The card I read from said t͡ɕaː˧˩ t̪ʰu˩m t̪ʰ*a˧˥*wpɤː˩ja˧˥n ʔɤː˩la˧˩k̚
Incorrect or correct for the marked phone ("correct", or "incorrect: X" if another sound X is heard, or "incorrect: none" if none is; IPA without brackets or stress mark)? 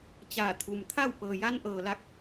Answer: incorrect: a˥˨